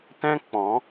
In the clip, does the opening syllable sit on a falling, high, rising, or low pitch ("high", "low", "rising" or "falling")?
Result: high